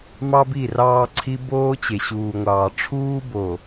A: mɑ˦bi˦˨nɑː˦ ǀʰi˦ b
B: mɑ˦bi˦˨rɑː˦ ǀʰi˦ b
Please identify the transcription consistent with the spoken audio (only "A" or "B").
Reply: B